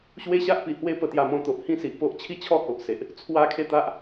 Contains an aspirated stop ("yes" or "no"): yes